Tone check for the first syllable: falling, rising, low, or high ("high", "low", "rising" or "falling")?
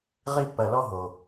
high